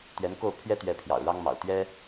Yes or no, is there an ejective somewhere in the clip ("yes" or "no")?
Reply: no